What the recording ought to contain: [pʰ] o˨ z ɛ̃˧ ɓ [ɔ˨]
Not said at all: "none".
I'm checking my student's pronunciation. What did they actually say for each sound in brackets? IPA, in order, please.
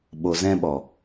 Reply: ɓ, ɔ˨

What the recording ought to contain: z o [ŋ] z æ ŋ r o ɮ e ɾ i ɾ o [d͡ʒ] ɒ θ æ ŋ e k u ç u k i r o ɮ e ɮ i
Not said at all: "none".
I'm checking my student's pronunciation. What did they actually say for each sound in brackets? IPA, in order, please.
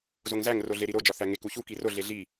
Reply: ŋ, d͡ʒ

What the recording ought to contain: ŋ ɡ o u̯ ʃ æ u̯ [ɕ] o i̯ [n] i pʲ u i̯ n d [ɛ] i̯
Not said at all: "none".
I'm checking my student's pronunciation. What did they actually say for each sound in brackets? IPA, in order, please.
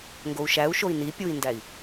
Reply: ʃ, n, æ

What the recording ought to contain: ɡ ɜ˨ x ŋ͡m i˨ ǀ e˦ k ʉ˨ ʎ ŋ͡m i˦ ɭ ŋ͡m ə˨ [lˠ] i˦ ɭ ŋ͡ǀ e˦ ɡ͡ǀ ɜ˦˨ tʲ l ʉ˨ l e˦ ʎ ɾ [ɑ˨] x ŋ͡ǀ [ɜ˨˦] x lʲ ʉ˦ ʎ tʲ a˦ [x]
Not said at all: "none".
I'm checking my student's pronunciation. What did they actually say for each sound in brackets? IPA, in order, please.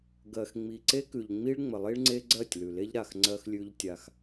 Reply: lˠ, a˨, ɜ˦, x

